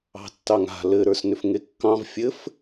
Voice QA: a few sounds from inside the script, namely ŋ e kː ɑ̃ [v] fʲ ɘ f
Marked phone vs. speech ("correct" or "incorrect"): correct